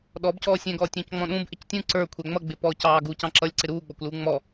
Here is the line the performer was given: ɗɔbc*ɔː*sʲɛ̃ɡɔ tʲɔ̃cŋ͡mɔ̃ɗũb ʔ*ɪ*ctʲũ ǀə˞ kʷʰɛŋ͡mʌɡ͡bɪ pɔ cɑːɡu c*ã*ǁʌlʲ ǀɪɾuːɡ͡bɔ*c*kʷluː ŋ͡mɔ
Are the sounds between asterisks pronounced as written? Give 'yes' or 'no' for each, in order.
yes, yes, no, no

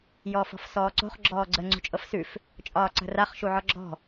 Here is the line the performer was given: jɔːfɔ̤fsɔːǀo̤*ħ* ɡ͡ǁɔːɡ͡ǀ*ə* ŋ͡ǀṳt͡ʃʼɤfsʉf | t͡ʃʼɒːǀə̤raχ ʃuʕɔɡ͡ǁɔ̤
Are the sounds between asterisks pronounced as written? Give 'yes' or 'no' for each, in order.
no, yes

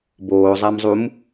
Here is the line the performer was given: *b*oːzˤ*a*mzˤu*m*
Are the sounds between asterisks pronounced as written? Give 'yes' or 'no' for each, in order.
yes, yes, yes

